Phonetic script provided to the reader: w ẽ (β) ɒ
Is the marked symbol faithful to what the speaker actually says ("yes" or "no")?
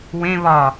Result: yes